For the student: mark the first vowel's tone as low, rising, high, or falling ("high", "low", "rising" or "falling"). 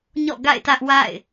falling